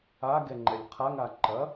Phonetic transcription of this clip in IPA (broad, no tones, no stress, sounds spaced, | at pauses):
a ɡ ɛ ŋ͡ǃ ɛ lʲ qʰ a ŋ a ǃ ɐ